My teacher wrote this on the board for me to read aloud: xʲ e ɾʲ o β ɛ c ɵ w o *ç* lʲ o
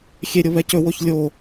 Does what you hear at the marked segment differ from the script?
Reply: no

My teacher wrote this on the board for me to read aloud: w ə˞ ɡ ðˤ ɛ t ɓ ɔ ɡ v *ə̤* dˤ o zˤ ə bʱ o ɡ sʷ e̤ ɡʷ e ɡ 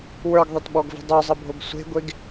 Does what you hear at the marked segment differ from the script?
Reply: no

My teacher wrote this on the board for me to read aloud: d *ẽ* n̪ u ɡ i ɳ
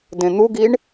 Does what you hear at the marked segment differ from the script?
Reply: no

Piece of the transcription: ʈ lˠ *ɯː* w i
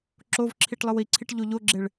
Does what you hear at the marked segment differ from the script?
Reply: yes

